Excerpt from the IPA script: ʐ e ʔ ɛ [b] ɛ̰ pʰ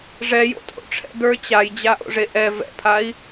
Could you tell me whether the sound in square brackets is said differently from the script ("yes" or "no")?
yes